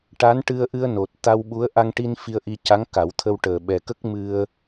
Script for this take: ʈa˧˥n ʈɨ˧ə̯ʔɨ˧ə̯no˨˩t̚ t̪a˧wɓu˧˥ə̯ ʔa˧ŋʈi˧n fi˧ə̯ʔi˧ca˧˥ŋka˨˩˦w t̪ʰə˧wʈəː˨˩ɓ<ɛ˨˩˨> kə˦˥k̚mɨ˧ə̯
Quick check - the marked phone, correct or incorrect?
incorrect